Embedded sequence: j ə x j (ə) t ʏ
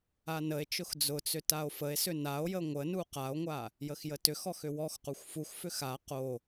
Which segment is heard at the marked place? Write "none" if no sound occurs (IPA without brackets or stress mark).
ə